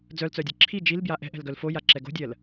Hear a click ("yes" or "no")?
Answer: yes